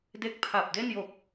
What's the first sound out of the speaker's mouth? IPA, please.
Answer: d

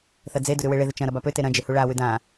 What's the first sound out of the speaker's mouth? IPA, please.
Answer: θ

